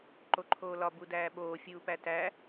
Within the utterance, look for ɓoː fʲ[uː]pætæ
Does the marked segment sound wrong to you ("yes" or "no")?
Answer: no